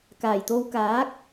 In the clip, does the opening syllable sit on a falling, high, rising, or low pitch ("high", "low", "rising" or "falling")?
low